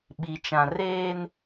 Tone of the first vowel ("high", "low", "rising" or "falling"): low